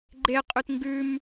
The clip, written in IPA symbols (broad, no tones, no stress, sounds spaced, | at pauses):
ɡ͡ǃ e qʼ ʉ t ŋ ɡ ʉ m